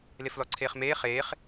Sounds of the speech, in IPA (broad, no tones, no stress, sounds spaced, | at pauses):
l e f l ɔ ǀʰ eː χ m eː χ eː χ